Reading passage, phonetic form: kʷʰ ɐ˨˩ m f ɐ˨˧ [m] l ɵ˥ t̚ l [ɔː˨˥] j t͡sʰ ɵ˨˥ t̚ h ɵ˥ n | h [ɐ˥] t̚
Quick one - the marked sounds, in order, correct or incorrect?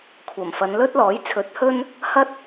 incorrect: n, correct, correct

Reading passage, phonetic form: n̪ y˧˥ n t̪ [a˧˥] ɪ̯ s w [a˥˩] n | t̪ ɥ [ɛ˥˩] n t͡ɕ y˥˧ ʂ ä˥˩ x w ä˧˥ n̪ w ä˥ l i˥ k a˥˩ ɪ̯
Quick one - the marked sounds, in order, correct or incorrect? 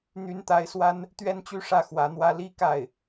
correct, incorrect: a˥, incorrect: ɛ˥

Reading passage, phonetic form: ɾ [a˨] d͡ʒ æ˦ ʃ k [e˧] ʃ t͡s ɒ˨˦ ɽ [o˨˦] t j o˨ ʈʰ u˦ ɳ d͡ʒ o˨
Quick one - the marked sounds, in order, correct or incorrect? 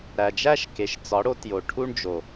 incorrect: æ˨, incorrect: e˨, correct

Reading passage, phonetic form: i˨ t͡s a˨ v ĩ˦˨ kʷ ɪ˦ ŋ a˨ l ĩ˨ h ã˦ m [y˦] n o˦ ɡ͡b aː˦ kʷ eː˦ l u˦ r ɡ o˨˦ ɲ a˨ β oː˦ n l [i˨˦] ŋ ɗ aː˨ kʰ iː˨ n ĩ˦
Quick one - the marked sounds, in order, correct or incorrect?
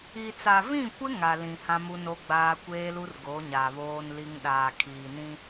incorrect: u˦, incorrect: i˦

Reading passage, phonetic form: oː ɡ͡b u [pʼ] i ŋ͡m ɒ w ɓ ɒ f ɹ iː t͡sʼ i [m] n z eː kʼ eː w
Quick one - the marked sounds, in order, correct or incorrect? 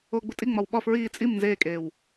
incorrect: tʼ, correct

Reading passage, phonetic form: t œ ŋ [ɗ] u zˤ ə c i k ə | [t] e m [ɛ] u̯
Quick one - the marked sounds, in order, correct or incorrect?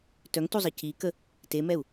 incorrect: t, correct, correct

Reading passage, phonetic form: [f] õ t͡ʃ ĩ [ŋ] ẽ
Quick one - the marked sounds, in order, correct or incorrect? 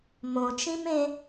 incorrect: m, incorrect: m

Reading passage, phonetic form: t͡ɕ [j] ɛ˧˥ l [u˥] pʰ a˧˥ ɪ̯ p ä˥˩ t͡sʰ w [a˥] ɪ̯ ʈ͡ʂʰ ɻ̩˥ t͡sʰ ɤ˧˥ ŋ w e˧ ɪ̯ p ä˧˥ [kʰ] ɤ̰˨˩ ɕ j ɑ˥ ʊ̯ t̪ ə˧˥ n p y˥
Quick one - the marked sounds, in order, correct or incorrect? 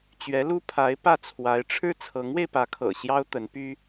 incorrect: ɥ, correct, incorrect: a˧˥, correct

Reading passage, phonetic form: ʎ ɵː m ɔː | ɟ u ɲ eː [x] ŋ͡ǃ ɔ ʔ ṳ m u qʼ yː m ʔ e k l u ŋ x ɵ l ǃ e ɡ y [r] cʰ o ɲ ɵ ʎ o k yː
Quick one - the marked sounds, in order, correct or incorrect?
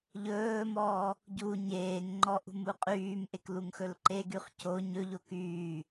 incorrect: ŋ, incorrect: χ

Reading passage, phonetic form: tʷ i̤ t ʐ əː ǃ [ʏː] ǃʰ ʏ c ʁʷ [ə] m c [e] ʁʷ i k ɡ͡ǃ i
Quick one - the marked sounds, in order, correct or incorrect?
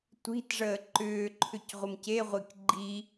correct, correct, correct

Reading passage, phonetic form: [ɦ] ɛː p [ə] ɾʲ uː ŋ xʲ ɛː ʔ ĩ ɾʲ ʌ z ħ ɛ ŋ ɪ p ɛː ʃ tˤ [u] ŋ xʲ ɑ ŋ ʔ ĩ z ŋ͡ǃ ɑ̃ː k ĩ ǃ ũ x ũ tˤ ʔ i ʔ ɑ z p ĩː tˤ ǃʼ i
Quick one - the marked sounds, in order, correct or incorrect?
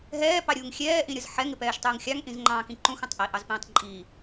correct, incorrect: ɑ, incorrect: uː

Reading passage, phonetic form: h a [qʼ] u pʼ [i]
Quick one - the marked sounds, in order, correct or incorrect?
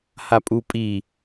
incorrect: pʼ, correct

